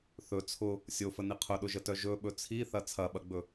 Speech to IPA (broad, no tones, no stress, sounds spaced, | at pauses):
θ ɵ t͡sʰ ʊ | sʲ o f ə n i qʰ ʊ ɗ ʊ ʒ ə t œ ʒ ɵ ɓ ɵ t͡sʰ i θ ɐ t͡sʰ ɐ ɓ ɐ ɡ͡b ɵ